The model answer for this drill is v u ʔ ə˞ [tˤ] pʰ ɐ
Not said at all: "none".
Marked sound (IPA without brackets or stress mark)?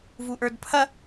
d